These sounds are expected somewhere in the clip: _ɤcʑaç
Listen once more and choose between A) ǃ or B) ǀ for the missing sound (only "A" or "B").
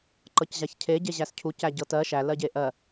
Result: A